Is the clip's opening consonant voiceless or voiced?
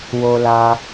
voiced